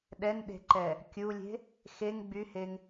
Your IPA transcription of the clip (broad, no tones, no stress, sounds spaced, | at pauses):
ɗ ɛ n ɗ e̤ ǃ ɛ | kʲ u lʲ e̤ | x e ŋ ɡ͡b y h e ŋ